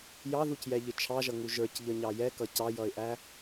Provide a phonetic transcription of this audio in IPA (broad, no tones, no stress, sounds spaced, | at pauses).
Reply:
j ɑ ð u c j ɛ ʎ ɪ t͡ʃʰ ɑ ʒ ʌ ŋ u ʒ ə˞ c ʎ ə ɲ ɑ j ɛ k ʌ c ɑ j ʌ ɪ̯ ʔ æ